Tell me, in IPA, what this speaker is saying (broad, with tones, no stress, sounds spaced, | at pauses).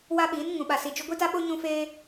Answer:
w a˦ ɓ iː˨˦ n ŋ ũ˨ ɓ a˨ s iː˨ d͡ʒ u˦ ɡʷ i˦ t a˦ ɓ o˦ ɲ ũ˦ f eː˦